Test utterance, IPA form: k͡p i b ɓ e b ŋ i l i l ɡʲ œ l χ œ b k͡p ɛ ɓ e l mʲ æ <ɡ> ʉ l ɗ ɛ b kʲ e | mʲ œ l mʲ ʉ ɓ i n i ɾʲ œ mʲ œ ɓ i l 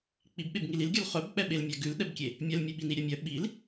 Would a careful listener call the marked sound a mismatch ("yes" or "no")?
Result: no